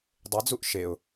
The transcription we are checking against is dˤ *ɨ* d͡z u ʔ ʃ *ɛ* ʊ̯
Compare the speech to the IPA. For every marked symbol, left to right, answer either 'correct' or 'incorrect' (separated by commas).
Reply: incorrect, incorrect